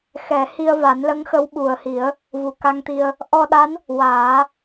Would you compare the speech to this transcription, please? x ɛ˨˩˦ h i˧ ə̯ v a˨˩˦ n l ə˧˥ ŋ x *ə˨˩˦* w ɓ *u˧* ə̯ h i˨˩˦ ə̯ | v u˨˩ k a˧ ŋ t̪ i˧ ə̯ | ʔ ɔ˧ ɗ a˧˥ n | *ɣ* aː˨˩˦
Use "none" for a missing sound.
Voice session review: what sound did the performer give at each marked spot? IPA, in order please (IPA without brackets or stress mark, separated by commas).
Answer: ə˧˥, u˨˩, w